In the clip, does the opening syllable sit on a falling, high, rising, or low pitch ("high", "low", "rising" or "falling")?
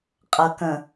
low